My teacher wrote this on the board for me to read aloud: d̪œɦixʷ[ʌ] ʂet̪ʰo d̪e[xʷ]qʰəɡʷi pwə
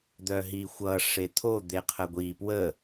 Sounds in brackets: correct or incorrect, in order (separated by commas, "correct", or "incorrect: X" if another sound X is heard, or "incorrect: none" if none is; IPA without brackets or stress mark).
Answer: correct, incorrect: none